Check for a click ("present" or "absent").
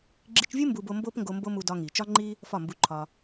present